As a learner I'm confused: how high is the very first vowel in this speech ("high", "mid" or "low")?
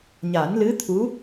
low